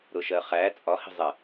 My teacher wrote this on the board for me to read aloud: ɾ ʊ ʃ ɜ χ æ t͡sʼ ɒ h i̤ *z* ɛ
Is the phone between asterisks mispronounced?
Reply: yes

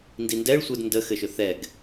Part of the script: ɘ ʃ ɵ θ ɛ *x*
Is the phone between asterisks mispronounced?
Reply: yes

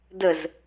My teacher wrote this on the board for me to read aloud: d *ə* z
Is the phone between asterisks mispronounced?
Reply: no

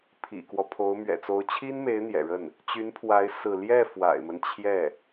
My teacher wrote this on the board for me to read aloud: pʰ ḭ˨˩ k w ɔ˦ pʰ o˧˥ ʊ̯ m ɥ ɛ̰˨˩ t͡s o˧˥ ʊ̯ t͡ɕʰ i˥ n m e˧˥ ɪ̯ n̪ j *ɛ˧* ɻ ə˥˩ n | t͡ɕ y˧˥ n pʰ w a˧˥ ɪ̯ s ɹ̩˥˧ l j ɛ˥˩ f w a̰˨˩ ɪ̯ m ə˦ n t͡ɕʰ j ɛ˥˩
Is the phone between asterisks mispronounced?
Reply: yes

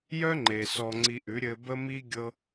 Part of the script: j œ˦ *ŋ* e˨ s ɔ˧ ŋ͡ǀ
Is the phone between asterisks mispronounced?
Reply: yes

